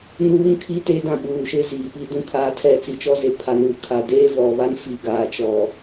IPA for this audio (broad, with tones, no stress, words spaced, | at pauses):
nuː˦ŋkʰi˦ te˦dã˦˨ɓuː˨ʃɪ˦ ziː˨pi˦dũ˦ kʰaː˦tʰɛ˦˨ t͡si˨t͡ʃɔ˦ze˨ pʰa˨nu˨kʰa˨ deː˦vɔ˨βa˦n fi˨ ɡaː˨t͡ʃɔ˨